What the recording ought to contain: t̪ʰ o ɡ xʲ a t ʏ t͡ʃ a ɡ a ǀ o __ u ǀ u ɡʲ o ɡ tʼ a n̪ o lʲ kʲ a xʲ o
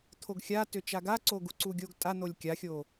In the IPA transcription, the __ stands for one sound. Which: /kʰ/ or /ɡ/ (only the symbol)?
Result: ɡ